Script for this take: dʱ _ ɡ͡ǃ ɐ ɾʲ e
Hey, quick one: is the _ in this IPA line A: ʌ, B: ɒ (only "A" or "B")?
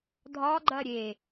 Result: B